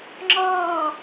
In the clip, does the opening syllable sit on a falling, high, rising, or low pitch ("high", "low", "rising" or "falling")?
falling